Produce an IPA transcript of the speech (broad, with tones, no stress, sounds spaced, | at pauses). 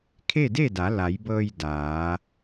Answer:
kʰ e˥˨ d e˥˨ d a˩˧ l a˩˧ j b ɤː˧ j d aː˩˧